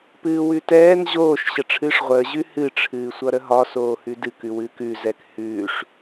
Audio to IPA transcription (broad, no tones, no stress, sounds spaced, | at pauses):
p ɨː w ʉ t ɛː n ʑ oː ʃ ɕ ə ʈ͡ʂʰ ɨː ʂ ʁʷ əː ʑ ʉ h ɨ ʈ͡ʂʰ ɨː sʷ ʌ ɾ ə ɦ ɒ s oː h ʉ d ɨ k ʉ w ɨː k ʉ z ɛ k h ʉː ʂ